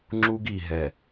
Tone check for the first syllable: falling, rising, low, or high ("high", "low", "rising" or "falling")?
high